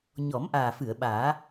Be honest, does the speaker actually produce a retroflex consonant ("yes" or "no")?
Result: no